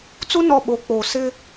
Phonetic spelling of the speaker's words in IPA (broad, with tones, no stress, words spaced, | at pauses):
t͡su˦ nɔ˦˨ɓo˨˦k͡poː˨ sɪ˦